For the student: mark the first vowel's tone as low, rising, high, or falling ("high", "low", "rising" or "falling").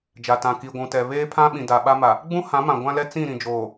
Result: low